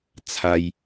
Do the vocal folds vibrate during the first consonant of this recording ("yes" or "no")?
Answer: no